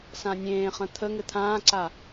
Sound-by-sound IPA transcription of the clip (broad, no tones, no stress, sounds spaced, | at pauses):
s ã nʲ ẽː χ ə̃ t̪ʰ ə ŋ ɘ t̪ʰ ãː ǀ a